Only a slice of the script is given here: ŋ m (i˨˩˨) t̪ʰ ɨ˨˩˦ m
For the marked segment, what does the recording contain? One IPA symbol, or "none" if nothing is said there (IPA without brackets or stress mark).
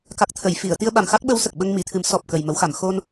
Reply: i˨˩˨